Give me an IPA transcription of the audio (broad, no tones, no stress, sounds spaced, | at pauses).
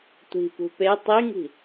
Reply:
tʷ i̤ p ṳ p e tˤ i ŋ i̤